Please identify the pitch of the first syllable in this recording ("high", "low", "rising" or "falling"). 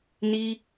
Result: high